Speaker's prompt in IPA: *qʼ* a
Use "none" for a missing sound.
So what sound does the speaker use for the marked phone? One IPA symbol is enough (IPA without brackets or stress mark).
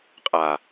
qʼ